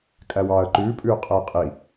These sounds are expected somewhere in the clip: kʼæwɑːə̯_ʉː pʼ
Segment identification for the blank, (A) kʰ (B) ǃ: B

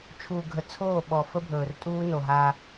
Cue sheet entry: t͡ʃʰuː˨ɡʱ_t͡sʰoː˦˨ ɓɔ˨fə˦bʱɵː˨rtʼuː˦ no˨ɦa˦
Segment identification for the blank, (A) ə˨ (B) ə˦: A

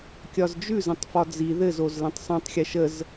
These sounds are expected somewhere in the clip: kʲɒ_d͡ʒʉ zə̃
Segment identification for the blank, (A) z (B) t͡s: A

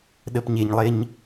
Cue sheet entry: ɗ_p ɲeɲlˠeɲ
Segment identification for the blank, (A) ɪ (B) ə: B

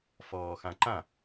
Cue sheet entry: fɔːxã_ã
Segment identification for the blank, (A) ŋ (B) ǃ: B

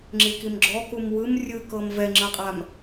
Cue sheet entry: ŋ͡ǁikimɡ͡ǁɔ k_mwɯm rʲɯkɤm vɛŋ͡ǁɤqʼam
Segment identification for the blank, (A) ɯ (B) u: B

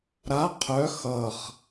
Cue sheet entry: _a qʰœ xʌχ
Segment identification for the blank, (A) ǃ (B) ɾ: B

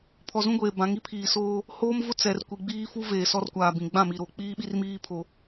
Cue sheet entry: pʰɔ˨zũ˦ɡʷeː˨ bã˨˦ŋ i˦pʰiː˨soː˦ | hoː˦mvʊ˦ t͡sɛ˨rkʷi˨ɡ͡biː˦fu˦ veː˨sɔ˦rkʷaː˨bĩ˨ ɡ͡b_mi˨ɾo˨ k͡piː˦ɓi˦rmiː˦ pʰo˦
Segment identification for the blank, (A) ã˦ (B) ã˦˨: B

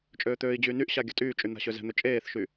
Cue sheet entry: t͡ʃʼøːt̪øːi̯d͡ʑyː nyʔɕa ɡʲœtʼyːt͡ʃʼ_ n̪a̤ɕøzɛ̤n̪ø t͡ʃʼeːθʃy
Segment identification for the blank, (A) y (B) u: A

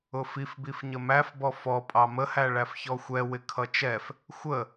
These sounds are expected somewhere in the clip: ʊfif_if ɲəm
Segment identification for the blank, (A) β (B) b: B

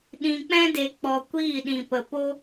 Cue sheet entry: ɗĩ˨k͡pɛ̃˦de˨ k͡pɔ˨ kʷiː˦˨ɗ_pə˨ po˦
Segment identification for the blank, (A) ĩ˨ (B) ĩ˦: A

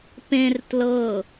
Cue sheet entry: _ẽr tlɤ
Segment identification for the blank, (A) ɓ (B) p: B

